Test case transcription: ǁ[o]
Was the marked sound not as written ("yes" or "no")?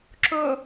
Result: no